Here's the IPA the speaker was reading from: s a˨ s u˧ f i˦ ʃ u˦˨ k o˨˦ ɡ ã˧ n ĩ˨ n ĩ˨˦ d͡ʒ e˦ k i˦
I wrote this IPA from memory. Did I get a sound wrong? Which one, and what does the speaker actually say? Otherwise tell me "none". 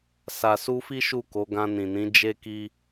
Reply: none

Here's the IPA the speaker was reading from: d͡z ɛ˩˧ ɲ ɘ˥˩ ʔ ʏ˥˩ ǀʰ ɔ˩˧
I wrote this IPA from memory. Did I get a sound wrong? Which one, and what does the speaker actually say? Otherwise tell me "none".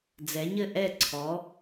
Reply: ʏ˥˩ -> ɛ˥˩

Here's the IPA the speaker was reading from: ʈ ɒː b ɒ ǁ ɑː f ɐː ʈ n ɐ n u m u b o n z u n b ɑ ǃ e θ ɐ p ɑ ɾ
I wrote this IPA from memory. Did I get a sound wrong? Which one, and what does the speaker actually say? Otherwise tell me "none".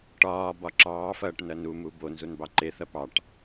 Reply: ɾ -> ʈ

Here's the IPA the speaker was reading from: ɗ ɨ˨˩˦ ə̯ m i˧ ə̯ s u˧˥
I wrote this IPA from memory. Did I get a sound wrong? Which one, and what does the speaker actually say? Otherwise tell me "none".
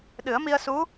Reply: none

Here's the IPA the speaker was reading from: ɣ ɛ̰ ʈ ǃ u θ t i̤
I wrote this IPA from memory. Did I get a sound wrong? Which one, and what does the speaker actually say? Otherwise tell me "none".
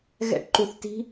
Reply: none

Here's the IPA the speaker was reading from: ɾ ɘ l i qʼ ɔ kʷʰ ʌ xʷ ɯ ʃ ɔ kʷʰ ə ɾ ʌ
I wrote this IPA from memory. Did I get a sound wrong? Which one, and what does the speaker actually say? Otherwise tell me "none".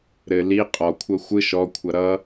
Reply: ə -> ʌ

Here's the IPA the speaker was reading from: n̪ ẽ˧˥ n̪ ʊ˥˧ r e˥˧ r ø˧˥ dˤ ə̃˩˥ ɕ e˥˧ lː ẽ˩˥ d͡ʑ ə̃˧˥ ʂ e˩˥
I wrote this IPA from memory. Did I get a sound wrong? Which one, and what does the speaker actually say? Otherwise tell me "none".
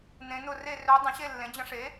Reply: none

